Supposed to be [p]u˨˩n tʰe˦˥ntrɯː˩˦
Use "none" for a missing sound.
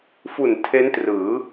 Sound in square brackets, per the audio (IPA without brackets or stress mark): f